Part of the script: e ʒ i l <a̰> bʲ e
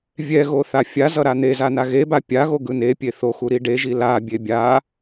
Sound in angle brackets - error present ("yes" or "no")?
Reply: yes